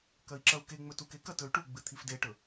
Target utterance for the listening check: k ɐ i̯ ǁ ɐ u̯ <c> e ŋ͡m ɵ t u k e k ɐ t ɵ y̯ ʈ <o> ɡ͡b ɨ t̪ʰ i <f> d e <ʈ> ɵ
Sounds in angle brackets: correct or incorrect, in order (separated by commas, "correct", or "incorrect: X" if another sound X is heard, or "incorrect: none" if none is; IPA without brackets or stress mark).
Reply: incorrect: k, incorrect: u, correct, correct